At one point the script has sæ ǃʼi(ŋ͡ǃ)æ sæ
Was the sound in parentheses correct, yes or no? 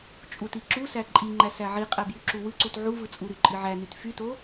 yes